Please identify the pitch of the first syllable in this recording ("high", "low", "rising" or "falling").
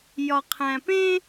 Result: low